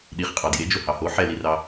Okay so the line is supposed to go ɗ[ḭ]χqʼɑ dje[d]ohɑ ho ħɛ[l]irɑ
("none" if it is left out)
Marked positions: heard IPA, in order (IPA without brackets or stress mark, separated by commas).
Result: i, d͡ʒ, l